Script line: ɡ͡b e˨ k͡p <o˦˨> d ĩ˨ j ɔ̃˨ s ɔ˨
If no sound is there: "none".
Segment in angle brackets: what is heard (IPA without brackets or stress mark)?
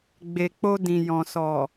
o˧